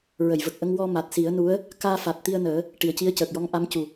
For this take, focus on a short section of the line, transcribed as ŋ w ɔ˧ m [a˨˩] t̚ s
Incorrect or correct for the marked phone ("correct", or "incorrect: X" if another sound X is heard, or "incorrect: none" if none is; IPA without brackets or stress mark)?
correct